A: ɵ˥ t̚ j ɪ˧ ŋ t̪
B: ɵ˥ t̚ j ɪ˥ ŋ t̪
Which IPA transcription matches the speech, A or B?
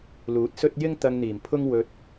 B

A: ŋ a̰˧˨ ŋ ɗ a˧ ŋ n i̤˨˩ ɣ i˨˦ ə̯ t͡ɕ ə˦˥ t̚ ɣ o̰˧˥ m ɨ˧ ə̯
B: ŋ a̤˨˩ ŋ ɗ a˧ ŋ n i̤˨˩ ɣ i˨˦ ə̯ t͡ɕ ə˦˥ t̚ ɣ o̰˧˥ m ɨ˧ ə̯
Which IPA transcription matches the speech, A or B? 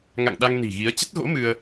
A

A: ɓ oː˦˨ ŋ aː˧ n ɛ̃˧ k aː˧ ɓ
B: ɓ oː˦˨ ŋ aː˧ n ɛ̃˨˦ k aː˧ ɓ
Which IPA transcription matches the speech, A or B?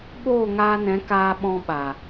B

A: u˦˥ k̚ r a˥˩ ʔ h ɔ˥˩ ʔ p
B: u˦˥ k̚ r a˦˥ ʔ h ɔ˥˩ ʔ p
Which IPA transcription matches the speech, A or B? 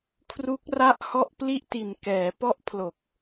A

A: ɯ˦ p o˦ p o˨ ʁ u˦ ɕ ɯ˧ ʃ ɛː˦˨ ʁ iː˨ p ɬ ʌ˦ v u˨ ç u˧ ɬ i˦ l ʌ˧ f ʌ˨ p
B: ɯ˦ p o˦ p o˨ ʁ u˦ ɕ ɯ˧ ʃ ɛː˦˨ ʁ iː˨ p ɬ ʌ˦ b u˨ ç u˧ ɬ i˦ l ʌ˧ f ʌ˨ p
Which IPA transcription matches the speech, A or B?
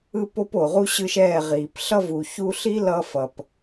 A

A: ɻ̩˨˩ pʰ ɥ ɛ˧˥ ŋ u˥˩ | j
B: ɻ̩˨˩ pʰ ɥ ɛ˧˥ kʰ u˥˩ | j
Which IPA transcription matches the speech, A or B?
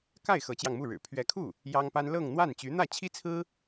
B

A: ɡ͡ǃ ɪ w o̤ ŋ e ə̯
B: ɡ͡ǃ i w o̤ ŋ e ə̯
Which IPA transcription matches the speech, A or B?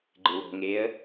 A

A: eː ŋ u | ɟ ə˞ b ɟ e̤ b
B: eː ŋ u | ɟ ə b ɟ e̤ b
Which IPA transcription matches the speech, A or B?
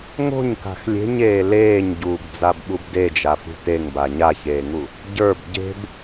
A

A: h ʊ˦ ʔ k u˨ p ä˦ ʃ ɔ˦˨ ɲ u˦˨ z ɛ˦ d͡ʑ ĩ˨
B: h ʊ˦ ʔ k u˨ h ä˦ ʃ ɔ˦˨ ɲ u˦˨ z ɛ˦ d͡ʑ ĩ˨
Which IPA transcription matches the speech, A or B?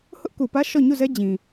A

